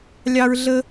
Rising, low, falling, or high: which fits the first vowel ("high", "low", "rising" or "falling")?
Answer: high